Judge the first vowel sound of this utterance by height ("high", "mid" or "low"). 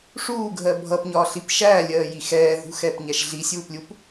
high